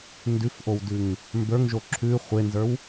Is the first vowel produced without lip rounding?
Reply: no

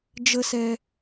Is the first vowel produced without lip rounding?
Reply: yes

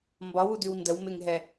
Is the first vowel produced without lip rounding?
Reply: no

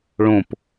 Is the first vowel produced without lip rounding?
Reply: no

